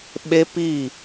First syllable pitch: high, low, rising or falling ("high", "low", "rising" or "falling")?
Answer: high